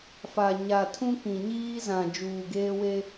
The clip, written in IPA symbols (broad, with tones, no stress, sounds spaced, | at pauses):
f a˨ ɲ a˨ tʰ ũ˦ k ĩ˨ ɲ iː˦ z ã˨ d͡ʒ uː˨ ɡ eː˦ w e˦